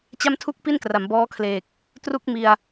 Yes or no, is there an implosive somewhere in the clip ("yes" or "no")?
no